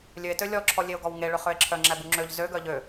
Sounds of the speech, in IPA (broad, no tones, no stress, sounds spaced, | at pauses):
lʲ ø e̯ t ø lʲ ɔ ǁʰ ɔ lʲ e o̯ ɡ ɔ w ŋ e ɭ ø χ ø e̯ ǁʰ œ ŋ͡ǁ æ b u ŋ͡ǁ ø ʎ z ø ɡ œ ʎ ø